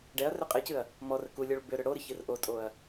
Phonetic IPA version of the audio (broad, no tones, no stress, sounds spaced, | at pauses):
ɖ ɛ ɐ̯ r ʏ qʼ ɨ c ɨ ɐ̯ | m ɔ r ə k u lʲ ɔ ɭ b ʏ ɾ ʏ ɽ o ɾ ɨ ç ɨ r ʔ o tʼ o ɐ̯